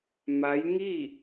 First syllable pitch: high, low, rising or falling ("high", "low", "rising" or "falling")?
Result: rising